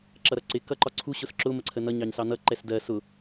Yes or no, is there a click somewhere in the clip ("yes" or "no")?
yes